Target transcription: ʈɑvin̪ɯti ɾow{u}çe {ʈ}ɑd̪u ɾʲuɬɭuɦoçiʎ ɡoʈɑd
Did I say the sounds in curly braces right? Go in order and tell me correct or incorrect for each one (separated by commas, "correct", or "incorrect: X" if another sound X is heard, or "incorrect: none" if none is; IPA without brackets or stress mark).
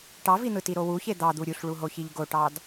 correct, incorrect: d̪